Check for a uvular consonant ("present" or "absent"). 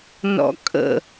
absent